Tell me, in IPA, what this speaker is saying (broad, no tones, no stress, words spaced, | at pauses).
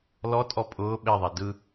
lɔ tʼɔpʼʊː ɓeðˤe dɯ